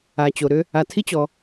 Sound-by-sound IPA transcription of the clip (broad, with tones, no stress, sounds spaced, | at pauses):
a˨ t͡ɕ o˨ ɾ ʏ˦ | a˨ tʰ i˦ t͡ɕ ɔ˨